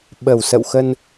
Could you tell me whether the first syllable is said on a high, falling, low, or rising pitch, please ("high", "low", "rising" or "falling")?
low